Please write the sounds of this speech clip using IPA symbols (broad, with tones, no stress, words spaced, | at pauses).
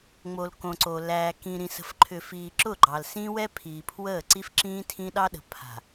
ŋ͡mo˨lkõ˨ ǀo˨ læː˨kĩ˨ ɾĩ˨sə̤˨fǃʰʏ˨ fiː˨ǁʊ˦˨ɡ͡ǃɑ˨l sĩ˦wɛ˦ pʰiː˨pʰwəː˦˨ǀi˦f ǁĩː˦tʰĩ˦ɗɑ˦ɗə̤˨ pʰa̤˨